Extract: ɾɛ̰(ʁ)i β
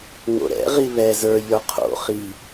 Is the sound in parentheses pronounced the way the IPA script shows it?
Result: yes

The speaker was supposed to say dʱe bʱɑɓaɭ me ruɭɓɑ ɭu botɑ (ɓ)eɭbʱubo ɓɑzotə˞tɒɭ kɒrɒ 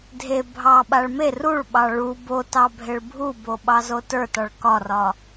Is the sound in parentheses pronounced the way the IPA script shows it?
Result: no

